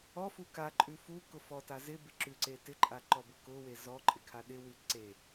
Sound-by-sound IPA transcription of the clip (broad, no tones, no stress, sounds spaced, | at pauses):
ɔ f u k a ǃʼ ʉ f u k ʊ f ɔ t a z ɪ b ɪ ǁ ʉ ǀ e t ɪ ǃʼ a ǃ ɔ b ʊ k ʊ w e z ɔ ǃʼ ɪ kʰ a ɗ ɪ w ʉ ǀ e